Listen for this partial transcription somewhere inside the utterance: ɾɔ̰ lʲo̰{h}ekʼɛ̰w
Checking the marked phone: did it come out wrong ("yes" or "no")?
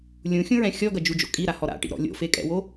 yes